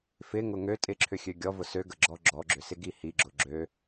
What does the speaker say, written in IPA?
fɪŋʊ ŋø tʼɪǁʰʏxʲø ɡʲɔvʊ søɡəɡ͡ǁɔ ɡ͡ǁɔɡ͡ǁʏsɪɡi hiɡ͡ǁʊ ɡ͡ǁø

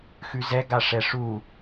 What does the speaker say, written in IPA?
xʉzɛɡa ʂɛʂu

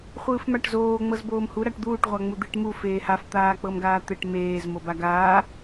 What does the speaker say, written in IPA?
χʷɯːfmaʈzoː ŋ͡mɤzboːmhu ɾaʈd̪uːʈ ʁʷaŋ͡mud̪iʈ mu feːhaf t̪aːk͡pɤmɡaːt̪eʈ meːz mobaɡaː

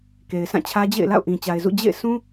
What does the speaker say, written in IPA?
ke˨ɪ̯sã˦˨t͡ɕʰä˦ d͡ʑḛ˦˨ɪ̯ la̰˦˨ʊ̯ʔĩ˨t͡ɕa˨ɪ̯zṵ˦˨ d͡ʑḛ˦˨ɪ̯sũ˦

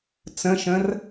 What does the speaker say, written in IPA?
t͡sə̃ʃə̃r

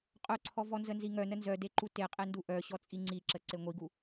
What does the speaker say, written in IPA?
qʼœǀʰɔ vɔnzənziŋœ nənzœdeǃu teqʼendu ʔœɕɔ t͡sʼiŋ͡ǀiǁə ǀeŋʷiɡu

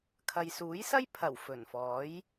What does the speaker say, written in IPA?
kʰɐ˨jsuː˨˥jsɐ˥jpʰɐ˨˩w fɵ˨˩nfɔː˨˥j

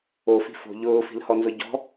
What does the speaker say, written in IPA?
ofi̤ fo̤ ʎʊːfi̤lhɔnzʊ ɟɔ̤

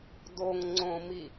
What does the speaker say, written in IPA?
doŋŋ͡ǀõmi

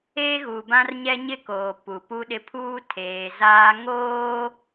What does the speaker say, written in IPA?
eː˦ ɣu˨bã˦rɲɛ˦ ɲɪ˦koː˨ pu˨pu˦ɗɪ˦ pʰuː˦tʰeː˨zaː˦ ŋoː˦

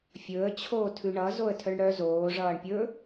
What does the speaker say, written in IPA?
fʲɵə̯ t͡ɕʰoːtʰʉɳʌ zoə̯tʰœɳɽœ zoː ʐʌːɳpʲɵ

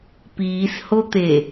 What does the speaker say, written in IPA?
piːshot̪e

